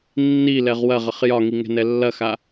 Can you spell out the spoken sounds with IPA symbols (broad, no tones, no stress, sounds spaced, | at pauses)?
nː i l ɛ ʁ w ɐ ʁ ə χ j ɒ ŋ i ŋ ɛ̤ n ɛ lː ɐ x a